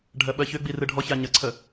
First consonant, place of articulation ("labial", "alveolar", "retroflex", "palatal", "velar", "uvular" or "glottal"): retroflex